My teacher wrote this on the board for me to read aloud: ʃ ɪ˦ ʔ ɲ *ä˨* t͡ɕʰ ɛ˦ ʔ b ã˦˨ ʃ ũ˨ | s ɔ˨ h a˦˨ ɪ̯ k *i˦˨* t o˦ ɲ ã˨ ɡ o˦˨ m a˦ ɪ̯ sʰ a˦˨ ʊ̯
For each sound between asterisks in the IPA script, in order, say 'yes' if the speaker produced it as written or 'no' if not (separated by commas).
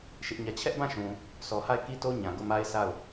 no, no